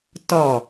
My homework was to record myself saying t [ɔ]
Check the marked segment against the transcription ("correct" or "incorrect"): correct